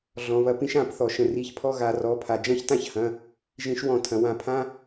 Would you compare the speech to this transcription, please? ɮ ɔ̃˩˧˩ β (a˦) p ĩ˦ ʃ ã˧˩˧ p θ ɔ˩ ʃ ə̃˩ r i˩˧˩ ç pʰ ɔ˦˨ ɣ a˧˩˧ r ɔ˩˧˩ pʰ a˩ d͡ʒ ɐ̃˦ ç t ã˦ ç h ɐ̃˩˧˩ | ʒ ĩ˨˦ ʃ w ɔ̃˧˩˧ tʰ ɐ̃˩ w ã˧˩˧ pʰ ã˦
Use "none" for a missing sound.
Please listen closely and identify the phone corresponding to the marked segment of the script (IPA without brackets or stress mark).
ɐ˦